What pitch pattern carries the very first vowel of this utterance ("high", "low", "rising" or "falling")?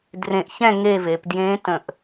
low